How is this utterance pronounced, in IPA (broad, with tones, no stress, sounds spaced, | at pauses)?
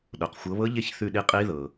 ɗ o˩ q xʷ ɤ˩˧ β ɤ˧˥ ʎ e˦˨ ç θ ʉ˦˨ ɗ i˦˨ qʼ i˧˥ ð ɤ˩